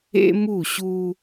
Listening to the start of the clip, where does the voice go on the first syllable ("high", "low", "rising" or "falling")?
high